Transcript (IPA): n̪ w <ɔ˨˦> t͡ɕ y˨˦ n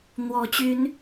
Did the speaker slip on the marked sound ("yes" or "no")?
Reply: no